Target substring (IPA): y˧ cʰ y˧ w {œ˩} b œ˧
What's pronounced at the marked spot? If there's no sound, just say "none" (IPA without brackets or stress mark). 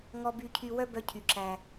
œ˥